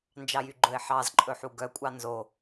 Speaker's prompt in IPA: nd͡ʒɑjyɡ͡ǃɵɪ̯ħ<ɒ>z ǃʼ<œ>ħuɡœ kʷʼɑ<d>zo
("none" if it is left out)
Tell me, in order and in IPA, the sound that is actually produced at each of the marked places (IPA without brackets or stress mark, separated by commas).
ɑ, ɵ, n